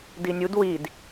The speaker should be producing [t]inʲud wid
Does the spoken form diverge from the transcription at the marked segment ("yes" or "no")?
yes